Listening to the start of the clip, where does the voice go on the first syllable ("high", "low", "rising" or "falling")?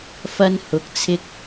high